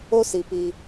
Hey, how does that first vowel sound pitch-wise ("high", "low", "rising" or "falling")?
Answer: high